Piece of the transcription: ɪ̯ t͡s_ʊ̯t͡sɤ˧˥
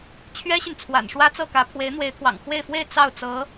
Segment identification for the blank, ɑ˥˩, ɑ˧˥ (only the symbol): ɑ˥˩